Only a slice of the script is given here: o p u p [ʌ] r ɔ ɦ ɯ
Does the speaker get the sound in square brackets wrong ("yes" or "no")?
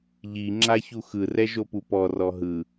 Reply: yes